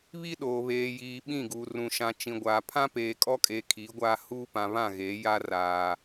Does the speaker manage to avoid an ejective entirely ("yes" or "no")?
no